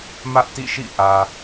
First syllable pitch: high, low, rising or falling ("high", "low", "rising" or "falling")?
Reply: high